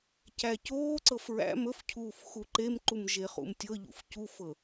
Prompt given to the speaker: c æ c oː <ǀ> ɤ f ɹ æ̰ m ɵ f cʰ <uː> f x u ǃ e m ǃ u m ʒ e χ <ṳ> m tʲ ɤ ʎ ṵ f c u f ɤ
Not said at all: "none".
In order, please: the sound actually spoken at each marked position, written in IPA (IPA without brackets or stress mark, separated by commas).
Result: ǀ, uː, ṵ